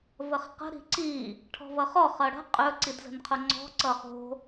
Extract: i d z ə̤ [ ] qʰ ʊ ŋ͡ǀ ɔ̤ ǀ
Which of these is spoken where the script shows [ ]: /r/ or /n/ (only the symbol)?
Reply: n